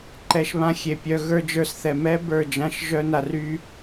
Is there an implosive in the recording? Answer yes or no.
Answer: no